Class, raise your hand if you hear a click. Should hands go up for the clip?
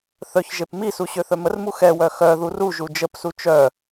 no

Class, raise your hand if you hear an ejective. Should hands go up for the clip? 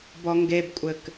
yes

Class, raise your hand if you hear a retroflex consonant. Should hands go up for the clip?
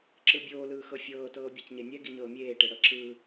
yes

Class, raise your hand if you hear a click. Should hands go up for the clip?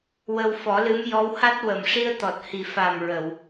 no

